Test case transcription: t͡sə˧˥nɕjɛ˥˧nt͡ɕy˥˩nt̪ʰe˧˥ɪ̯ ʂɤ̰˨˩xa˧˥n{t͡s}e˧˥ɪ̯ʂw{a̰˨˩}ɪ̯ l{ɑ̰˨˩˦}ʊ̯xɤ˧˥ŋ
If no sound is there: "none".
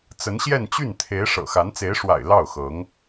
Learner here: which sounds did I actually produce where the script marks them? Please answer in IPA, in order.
t͡s, a̰˨˩, ɑ˥˩

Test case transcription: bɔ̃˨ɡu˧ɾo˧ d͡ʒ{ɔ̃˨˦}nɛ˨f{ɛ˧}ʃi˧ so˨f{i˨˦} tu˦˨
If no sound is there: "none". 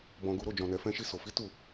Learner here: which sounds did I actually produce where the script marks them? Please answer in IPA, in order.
ɔ̃˨, ɛ̃˧, i˨˦

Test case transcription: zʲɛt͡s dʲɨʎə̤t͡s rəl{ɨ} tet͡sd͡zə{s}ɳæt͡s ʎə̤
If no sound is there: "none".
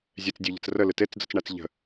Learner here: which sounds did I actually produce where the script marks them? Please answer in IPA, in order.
ɨ, t͡s

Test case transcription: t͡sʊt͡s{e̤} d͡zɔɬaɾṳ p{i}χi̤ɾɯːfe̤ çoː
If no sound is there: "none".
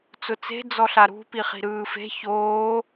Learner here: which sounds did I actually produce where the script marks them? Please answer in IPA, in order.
e̤, i

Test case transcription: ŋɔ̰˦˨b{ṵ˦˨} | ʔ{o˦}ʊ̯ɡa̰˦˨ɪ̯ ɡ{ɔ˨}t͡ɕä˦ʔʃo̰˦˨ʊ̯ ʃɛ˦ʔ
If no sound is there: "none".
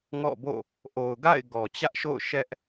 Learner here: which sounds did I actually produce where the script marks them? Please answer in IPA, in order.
o̰˦˨, o˨, ɔ˨

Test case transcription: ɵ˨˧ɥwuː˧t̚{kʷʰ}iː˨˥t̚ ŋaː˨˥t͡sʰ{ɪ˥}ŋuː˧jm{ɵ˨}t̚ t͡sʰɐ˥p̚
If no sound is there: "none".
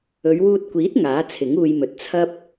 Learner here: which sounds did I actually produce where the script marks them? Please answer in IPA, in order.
kʷ, ɪ˨˥, ɵ˨˥

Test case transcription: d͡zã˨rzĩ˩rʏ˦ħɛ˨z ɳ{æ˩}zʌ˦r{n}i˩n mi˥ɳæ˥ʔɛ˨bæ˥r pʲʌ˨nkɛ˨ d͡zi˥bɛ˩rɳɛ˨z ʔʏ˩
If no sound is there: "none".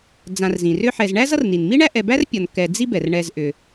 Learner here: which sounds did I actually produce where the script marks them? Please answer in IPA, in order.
æ˥, n

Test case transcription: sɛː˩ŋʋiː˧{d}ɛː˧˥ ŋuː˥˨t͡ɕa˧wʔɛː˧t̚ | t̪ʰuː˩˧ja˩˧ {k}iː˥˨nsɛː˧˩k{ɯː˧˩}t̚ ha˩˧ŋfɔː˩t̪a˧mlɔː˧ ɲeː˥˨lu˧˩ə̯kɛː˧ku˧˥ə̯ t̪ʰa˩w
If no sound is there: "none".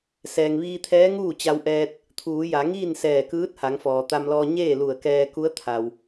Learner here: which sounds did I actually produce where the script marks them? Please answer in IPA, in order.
t̪ʰ, ŋ, ɯː˧˥

